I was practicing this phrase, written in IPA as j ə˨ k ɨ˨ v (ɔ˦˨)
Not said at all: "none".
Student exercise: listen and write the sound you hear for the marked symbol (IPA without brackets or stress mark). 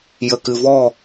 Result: ɔ˦˨